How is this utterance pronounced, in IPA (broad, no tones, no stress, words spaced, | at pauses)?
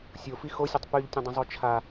sʲofi xosʲotˤ pyʎtʲə̃dˤə̃zˤo t͡ʃʰa